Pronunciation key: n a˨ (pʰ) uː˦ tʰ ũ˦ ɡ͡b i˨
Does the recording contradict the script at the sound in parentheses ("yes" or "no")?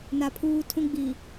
no